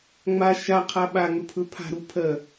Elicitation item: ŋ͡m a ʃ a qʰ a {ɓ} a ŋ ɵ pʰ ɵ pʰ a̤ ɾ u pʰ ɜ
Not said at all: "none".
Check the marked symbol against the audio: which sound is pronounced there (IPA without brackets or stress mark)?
ɓ